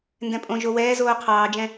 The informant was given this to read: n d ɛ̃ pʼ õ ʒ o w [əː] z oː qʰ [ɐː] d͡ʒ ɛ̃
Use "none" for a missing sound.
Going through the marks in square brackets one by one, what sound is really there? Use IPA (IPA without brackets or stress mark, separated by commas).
ɛː, ɑː